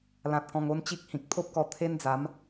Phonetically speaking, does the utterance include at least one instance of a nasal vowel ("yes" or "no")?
yes